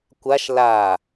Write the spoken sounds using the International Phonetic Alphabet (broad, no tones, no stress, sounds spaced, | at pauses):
kʷ a ʃ l a